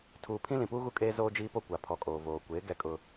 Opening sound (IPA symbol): tʰ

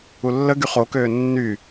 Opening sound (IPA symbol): u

